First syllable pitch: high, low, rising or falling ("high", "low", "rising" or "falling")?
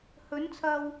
rising